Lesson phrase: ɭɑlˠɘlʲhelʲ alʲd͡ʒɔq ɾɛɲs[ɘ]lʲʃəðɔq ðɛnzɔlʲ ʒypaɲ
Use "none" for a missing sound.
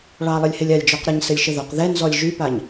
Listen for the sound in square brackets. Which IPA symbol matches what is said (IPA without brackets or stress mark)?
ɘ